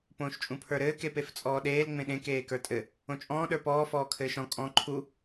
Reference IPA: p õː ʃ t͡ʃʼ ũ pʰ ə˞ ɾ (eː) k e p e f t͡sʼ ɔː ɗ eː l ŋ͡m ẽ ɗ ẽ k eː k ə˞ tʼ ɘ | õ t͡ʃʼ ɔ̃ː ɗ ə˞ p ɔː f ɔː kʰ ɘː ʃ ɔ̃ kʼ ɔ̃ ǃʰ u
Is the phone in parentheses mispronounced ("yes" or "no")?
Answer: yes